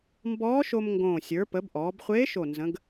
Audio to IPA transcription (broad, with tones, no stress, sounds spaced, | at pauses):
m b ɔː˧˥ ʃ o˧ m ŋ ɡ õː˨˩ sʲ ə˞˩˧ p ə˩˧ b ʔ ɔː˩˧ b χʷ eː˧˥ ʃ o˨˩ n z ə̃˩˧ ɡ